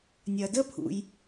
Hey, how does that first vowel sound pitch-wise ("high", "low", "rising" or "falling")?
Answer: low